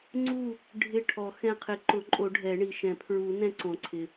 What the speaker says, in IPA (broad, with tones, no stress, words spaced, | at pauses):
ŋ͡ǀu˦˨ | ɖʱɪ˦˨ʈʰɔ˨˩˦xɛ̃˦˨ qʰɪ˨˩˦ǃʊ˨˩˦ǃʼo˨˩˦ ɖʱɛ˨˩˦ɳi˩ ʃɛ̃˨˩˦pʰɹu˨˩˦ nɛ̃˦˨ǀõ˩ǀʰɪ˩